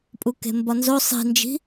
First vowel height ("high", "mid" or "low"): high